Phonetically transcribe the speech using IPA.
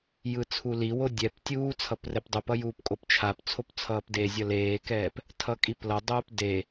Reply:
j ɯ t͡sʰ u l i w o dʲ ɛ p tʲ uː t͡sʰ ʌ p r ɛ p dˤ u p ʌ j uː p kʼ o p t͡ʃʰ a p t͡sʰ o p t͡sʰ ʌː p d e zʲ ʌ l eː k ɛː p | tʰ ʌ kʼ i p l ʌ dˤ uː p d e

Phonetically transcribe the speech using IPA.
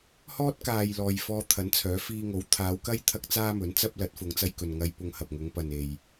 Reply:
h ɔː˥ t̚ k aː˨ j l ɔː˨ j f ɔː˧ t̪ʰ ɐ˨˥ n t͡sʰ œː˨˥ f iː˧ ŋ o˨˥ w t̪ʰ aː˨˧ w k ɐ˥ j t̪ʰ ɐ˥ k̚ t͡s aː˥ m ɵ˨˥ n t͡s ɐ˥ p̚ l ɐ˨˥ t̚ f ʊ˨˧ ŋ t͡s ɐ˧ j k ɵ˨ n ŋ ɐ˧ j p ʊ˧ ŋ h ɐ˨ p̚ ŋ ʊ˨˧ ŋ p ɐ˨ n e˨ j

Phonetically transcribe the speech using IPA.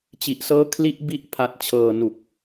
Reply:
t͡ɕ i˨˩ ʔ s ɤː˦˥ kʰ l i˦˥ ʔ b i˦˥ ʔ pʰ a˨˩ t̚ t͡ɕʰ ɤː˨˩ n u˨˩ k̚

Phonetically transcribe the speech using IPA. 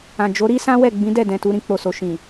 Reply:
ã˨ d͡ʒ o˨˦ ɾ i˦ s ã˦ w ɛ˦˨ ɡ͡b ĩ˨˦ d ɛ˦˨ d ɛ̃˨ t u˧ ɾ ĩ˧ k͡p o˨ s o˨ ʃ ĩ˨

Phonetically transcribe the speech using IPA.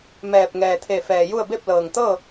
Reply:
m ɛː˧˩ p̚ ŋ ɛː˩ t̪ʰ e˧˩ f ɛː˩ j u˥˨ ə̯ b e˥˨ p̚ l ɤː˩ ŋ t̪ ɤː˥˨

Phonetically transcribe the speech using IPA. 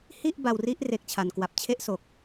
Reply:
h i˥˩ ʔ b a˧ w r i˦˥ ʔ r e˦˥ k̚ t͡ɕʰ a˨˩ n k w a˨˩ p̚ t͡ɕʰ e˦˥ ʔ s o˨˩ k̚

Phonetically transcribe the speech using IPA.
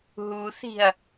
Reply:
ɦ u θ i̤ ɐ̯

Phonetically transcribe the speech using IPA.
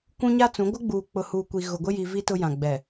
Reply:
kʷ ũ˦ ɲ a˦ t͡s ũ˨˦ ɡʷ ɪ˦ ɡ͡b uː˨ k͡p ʊ˨ h uː˨ kʷ i˨ ɣ ʊ˨ ɡʷ ɪ˦ j i˨ v i˦ t ʊ˦ j ã˨ ɡ͡b ɛ˨

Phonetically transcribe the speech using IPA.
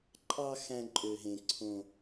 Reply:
ǃʼ ɑ˥ x æ̃˥ ǃʼ ø˦ ɦ ẽ˦ ǀʰ õ˥

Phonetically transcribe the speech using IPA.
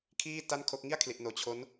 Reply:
kʰ iː˥˩ t a˥˩ n kʰ o˦˥ k̚ ŋ i˥˩ a̯ kʰ l i˨˩ ʔ n oː˨˩ t͡ɕʰ o˦˥ n

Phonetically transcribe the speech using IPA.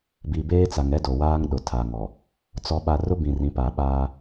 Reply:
b i˨ b eː˦ t͡s a˨ ŋ ɛ˦ d o˨ w aː˦ ŋ ɗ ʊ˨ tʰ a˨ ŋ ɔ˨ | t͡s ɔ˨ ɓ a˨ r ʊ˦ b ĩ˨ r ĩ˨˦ p a˨ ɓ aː˦

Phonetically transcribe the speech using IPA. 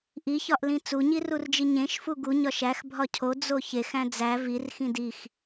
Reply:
ʔ i ç ɒ ʔ l ĩ t͡s u ɲ i r u r d͡ʒ i ɲ ẽ ʃ f u ɡ u ɲ ɒ ʃ æ x bʱ ɒ cʰ o d͡z o ç e x æ̃ d͡z æ v i r x ĩ d i x

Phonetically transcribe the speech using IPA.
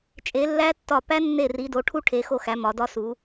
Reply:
t͡ʃʼ e˨˦ lː æ˦˥ tː ɒ˦˨ p æ˦˥ nː e˦˨ r i˨˦ d o˨˦ ʈʰ u˦˥ ʈʰ e˨˦ x o˦˨ x æ˨˦ m ɒ˨˦ d ɒ˦˥ s u˨˦

